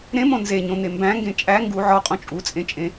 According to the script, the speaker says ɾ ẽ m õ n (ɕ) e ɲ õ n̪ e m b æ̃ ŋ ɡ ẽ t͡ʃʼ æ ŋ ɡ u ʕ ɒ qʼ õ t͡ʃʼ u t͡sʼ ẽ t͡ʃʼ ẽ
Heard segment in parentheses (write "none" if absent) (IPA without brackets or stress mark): z